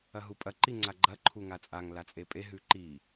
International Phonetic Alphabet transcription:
ɐɦupʼɐ ǃiŋ͡ǀaɡ͡ǃɐ ǃʰuŋat͡sʼaŋ lat͡sʼepʼe ɦʉǃi

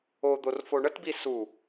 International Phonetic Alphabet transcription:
od̪or foɳətbi su

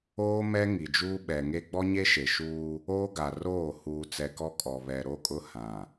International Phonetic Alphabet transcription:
oː˦mɛ˦ ŋi˨d͡ʒuː˦ ɓɛ˨ŋe˦ ɡ͡bɔ˦ɲe˦ʃe˨ʃuː˦ | oː˦ɡa˨roː˦˨ huː˨t͡sɛ˨ kɔ˦kʼɔ˨ βɛ˨ɾo˦ kʼʊ˦ hã˨

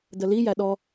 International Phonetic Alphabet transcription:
dəlijæ ɗɔ

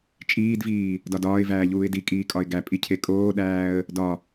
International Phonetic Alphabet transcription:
t͡ʃʼiːdviː | dɒdɒːɪ̯væː ʎuːɪ̯dikʼiː kʼɒɪ̯ɡæpʼi cʰekʼoːɗæːə̯ | dɒ

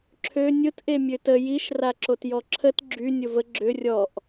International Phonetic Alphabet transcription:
ǁʰø nʲʊtʔe mʲøtə jiʃraǁot jɔǁʰət ɡ͡ǁy nʲʊvə ɡ͡ǁʏ rʲɔʔ

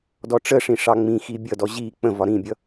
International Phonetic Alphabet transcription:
dɔʈ͡ʂəʂĩ ʂɑŋ͡mĩxi bʲʌdɔ ʑi k͡pə̃vɒ ɾĩbʲʌ

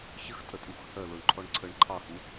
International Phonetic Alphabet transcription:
çəxtʼətʼux hœloɳǃʰɔɳ ǀʰəɳ ǃʰɑhu

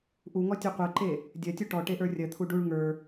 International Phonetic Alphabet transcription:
ʔuŋɔ tʲɔqʷɜǃe | dʲɜtʲu ʈɔ ʈeʔə˞rʲɜt̪ʰu ɖuɭ ŋə˞

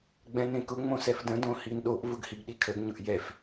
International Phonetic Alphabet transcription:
ɡ͡bɛ̃nẽkʊ ŋ͡mõsɛfdə̃ dõhinɗoʔ vʊɡhiɡɗikʰəɡ ɲʊʔjɛf

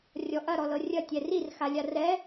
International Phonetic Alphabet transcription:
rʲɔʔɐ ɾɔlɤrʲɐ tʲɛrir xalʲarɛ

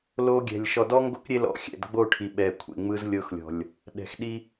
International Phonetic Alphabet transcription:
lo˦ɡʲɛ̤˨lʲ ʃɔ˨dɔ˦ŋɡo˦k ɾʲe˦lɔ̰˨xʲɛ̰˨dɡ͡bo˦˨ ʈʰi˨ɓɛ˨kʷʰḛ˨ŋ͡mɯ˦z lʲɤ˦xlʲɔ̤˨lʲ | ɗɛ̤˨xɗi˦

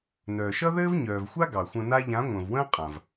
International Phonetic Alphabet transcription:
nœː˨ʃʌ˦ðɘː˦v ɲœː˨vxʷa˦ ɡɑ˨xʷə̃˧na˦ ʎã˨˦ŋʷə̃ː˨vwə̃ː˦ qʼã˨v

